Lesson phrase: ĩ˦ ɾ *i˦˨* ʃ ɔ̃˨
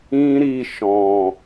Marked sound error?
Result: no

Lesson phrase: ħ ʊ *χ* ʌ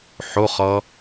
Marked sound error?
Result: no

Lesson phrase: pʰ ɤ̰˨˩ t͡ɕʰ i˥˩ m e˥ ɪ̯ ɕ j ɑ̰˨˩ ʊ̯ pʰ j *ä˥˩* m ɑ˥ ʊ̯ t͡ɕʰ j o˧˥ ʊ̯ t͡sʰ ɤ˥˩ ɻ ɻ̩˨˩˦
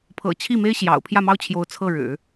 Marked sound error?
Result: no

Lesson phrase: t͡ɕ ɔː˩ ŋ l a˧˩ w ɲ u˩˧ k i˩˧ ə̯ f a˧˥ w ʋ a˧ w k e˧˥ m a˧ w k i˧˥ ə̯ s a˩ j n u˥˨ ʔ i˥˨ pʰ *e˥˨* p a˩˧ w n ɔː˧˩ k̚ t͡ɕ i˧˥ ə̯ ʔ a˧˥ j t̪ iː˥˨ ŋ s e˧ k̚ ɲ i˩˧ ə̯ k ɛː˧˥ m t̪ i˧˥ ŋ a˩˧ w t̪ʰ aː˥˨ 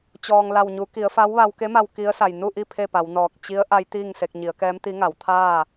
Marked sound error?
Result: no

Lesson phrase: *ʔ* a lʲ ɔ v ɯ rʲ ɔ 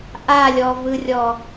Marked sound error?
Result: no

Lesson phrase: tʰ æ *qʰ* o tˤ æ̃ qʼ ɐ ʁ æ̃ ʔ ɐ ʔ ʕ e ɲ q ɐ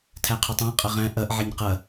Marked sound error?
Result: no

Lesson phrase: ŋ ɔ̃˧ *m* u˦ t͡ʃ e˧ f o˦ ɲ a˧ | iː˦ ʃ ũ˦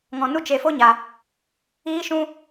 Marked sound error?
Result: yes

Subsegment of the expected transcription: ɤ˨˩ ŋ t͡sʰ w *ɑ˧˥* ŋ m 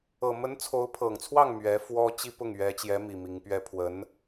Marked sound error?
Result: yes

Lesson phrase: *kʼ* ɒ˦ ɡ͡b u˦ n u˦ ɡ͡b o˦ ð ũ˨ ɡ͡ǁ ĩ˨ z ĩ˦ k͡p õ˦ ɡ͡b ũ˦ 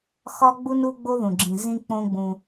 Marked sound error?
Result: yes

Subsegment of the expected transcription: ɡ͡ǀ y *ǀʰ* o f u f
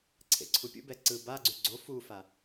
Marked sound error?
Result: yes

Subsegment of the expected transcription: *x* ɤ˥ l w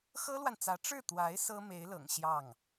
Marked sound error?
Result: no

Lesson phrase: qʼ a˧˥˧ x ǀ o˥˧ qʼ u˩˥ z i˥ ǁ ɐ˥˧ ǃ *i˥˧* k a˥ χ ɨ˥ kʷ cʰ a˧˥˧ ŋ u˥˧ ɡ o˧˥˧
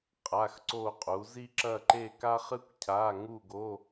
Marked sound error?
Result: yes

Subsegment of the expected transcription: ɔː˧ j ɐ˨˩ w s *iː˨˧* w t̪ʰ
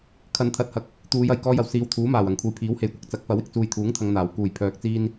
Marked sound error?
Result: no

